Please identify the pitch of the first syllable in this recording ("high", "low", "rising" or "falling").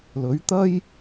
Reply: rising